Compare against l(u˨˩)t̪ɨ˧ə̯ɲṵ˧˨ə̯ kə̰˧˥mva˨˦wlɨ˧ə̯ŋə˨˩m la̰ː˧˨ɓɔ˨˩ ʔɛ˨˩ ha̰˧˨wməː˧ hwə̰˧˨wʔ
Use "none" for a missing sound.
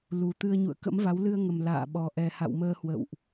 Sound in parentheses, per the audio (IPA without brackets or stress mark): u˨˩